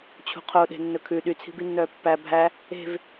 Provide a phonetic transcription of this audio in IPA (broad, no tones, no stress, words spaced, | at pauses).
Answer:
t͡ɕʰṳqʰoɗe̤ nːɵkʰʉ ɗyt͡sʰi̤binːœː pːæ bʱæ | e̤v